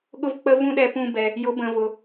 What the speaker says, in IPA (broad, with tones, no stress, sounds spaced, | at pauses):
ɠ ʊ˧ v k͡p ə˧ v ũ˦ ɗ ɛ˧ p ũ˧ b ɛ˨ | j ʊ˨˦ b ə̃˨ v ʊ˨